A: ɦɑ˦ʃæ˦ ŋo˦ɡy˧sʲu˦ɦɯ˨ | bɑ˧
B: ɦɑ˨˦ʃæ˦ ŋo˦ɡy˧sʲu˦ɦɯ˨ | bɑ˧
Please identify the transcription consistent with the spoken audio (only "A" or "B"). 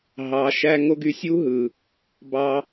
B